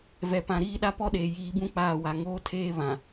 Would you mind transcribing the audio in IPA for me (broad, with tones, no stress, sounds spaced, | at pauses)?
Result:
v ɛ˨ p ã˨ ɾ iː˦˨ ɗ a˦ p ɔ˦ ɗ eː˨ j iː˨˦ b ũ˦ k͡p aː˦˨ w a˨ ŋ oː˦ tʰ eː˦ β ã˨